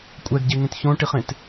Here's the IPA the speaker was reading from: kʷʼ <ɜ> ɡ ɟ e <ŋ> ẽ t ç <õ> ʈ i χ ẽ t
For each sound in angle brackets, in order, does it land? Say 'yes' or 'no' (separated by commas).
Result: no, yes, yes